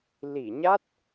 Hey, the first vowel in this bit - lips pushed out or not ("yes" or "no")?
no